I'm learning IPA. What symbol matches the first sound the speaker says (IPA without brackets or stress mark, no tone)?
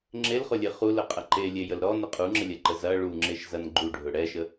ŋ͡ǁ